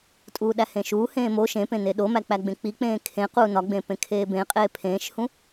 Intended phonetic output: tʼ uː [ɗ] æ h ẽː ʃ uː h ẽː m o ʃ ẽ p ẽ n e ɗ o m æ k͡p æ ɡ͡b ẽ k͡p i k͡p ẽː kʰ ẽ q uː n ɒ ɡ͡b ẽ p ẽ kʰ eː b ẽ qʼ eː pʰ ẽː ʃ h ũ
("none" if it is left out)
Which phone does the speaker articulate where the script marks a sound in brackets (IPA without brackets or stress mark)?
ɗ